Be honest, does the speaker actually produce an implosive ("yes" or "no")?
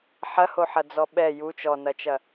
yes